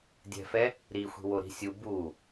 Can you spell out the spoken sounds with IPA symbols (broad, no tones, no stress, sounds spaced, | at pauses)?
dʲ ɛ̤ f ɛ | ɾ i xʷ i̤ w o ɾ i̤ sʲ u b u